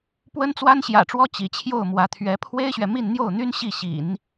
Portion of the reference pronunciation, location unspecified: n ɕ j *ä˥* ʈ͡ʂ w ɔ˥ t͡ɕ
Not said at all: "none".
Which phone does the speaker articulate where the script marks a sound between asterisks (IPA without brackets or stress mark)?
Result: ä̰˨˩